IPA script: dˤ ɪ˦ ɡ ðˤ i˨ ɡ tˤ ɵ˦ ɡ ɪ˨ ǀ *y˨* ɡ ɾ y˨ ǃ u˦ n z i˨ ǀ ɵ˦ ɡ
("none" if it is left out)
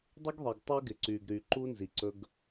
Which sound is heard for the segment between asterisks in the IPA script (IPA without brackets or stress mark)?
y˨